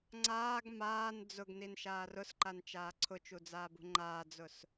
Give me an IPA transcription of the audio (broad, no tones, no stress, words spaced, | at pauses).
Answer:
ŋ͡ǀaːɡ maːn d͡zʊɡninʃaːr ʊsǃant͡ʃaː ǀʰʊt͡ʃud͡zaːbṳ ŋ͡ǃaːd͡zʊs